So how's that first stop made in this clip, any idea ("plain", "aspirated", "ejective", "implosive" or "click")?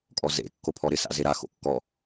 ejective